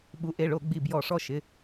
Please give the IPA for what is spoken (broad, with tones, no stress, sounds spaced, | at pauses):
ɓ u˩˥ ʔ e˩˧˩ ɭ o˧˩˧ ɡ͡b i˧˩ b j ɔ˧˩˧ ʂ ɔ˦ ʃ ɪ˩˧˩